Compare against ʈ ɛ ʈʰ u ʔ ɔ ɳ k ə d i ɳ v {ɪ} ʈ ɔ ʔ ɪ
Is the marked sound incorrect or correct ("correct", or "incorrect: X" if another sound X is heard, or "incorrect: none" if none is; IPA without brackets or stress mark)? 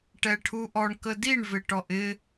correct